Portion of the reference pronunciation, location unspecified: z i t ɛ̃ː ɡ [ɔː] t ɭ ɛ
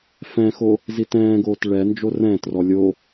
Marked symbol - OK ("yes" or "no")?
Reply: no